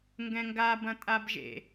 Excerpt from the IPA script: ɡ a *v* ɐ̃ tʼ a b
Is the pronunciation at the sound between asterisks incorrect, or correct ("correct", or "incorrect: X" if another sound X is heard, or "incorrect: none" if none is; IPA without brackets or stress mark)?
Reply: incorrect: b